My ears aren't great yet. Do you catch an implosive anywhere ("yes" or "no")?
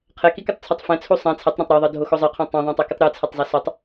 no